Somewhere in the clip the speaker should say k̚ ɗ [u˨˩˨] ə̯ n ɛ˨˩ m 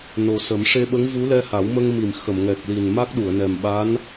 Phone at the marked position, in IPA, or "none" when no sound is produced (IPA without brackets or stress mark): u˨˩˨